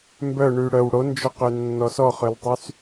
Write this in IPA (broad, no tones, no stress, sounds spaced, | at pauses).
m b œ ɳ y ɽ œ w ɽ o n d͡ʒ ɔ q ø nː ɔ s ɔ χ ø l tˤ y s